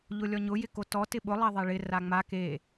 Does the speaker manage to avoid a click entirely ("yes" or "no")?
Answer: yes